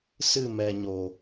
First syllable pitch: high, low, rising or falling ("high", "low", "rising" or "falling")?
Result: falling